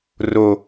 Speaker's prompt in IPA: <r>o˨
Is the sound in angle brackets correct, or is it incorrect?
correct